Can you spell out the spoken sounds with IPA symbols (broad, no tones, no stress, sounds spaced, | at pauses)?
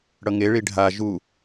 ɽ ʌ ŋ e ɭ i ɖʱ a ʒ u